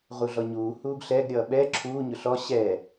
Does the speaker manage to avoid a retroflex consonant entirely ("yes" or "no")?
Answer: yes